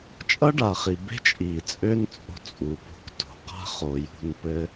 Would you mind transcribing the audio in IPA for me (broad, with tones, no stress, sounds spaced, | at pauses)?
t͡ʃʼ ʌ˦ ɖ a˨ χ i˨ b e̤˦ t͡ʃʼ iː˨ t͡sʼ ø˦ n t͡sʼ o̤˦ t͡sʼ u˨ p o̤˦ k t o̤˨ q a̤˦ χ oː˨ j ṳ˦˨ n p ɘ˦